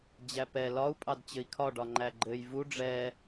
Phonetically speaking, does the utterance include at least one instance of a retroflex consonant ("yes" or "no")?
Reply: yes